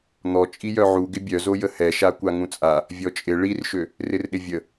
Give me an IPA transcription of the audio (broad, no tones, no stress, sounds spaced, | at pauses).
n̪ ɔ t͡ʃʼ i j œ ʕ u ɡ ɪ bʲ œ z o j ə h ɛ ʃ a kʷ a ŋ ũ t͡sʼ a | vʲ ɔ t͡ʃʼ ɪ ɭ i r ʃ ø | r ɪ r ɗ ɪ vʲ ə